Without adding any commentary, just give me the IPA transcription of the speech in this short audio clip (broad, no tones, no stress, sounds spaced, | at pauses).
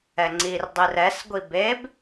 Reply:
ɛ ŋ͡ǀ i r dˤ i r ɛ s ɡʷ i b e b